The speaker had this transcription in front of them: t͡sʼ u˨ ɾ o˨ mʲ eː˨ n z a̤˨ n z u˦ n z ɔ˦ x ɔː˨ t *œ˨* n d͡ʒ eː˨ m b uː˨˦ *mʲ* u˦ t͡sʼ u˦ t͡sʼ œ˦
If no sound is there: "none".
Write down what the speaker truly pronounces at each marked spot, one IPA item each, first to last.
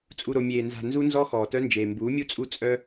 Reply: œ˦, mʲ

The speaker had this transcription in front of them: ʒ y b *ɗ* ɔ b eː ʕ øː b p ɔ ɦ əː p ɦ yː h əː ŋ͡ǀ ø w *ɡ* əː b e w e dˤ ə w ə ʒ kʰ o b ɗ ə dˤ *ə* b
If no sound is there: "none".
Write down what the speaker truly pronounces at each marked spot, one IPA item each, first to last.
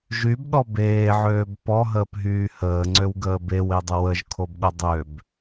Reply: ɗ, ɡ, ø

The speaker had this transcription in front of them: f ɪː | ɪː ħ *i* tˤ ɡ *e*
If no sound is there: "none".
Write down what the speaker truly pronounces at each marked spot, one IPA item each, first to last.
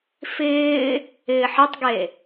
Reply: ɪ, e

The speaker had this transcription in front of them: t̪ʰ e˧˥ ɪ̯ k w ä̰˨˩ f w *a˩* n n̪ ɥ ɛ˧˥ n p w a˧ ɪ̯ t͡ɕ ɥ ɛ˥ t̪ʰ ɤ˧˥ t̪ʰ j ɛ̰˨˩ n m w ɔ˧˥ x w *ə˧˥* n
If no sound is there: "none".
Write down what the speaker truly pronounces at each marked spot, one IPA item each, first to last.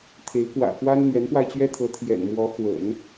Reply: a˥, ə̰˨˩˦

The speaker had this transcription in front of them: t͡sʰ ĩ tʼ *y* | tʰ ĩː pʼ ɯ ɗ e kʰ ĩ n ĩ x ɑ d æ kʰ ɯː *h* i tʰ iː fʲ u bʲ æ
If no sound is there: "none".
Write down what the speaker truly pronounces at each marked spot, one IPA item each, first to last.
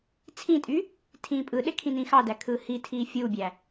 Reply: y, h

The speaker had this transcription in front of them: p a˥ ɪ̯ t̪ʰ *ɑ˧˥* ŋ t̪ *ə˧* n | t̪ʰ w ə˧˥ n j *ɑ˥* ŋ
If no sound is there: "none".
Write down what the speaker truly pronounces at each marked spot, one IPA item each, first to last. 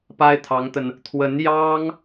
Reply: ɑ˧˥, ə˧, ɑ˥

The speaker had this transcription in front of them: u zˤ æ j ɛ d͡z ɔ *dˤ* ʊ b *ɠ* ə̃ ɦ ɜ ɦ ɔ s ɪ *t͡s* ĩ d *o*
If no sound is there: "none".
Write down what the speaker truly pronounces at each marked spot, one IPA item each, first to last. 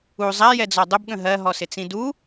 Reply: dˤ, ɠ, t͡s, u

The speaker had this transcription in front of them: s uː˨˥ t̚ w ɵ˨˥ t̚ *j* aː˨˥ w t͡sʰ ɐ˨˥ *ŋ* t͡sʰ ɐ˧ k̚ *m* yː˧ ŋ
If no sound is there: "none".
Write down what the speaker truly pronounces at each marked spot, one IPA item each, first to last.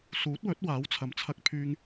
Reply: w, m, pʰ

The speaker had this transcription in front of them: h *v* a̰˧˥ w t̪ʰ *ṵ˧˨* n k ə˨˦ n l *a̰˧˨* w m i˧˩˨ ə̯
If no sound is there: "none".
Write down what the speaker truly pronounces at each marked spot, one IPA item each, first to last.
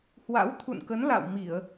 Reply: w, ṵ˧˨, a̰˧˨

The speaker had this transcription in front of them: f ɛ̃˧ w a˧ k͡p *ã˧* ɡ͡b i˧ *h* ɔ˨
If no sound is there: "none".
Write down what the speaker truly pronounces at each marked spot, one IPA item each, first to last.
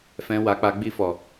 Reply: a˧, f

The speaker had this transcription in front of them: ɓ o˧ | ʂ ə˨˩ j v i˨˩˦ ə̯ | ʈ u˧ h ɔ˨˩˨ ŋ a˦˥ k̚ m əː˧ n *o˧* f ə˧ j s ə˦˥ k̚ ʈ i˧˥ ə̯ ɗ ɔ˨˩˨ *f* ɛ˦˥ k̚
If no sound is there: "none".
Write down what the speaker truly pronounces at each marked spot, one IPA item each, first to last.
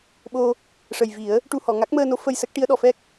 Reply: o˧˥, f

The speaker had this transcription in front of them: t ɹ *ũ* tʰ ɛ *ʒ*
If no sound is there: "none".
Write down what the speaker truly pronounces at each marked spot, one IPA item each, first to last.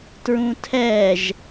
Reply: ũ, ʒ

